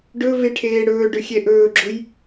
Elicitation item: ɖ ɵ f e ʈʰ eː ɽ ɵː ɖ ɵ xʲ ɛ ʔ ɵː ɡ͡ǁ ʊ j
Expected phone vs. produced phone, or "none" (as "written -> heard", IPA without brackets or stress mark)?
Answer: f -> v